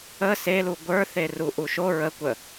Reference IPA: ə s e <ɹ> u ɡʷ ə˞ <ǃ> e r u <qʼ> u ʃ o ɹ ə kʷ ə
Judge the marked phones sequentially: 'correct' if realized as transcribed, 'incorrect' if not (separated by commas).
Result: incorrect, incorrect, incorrect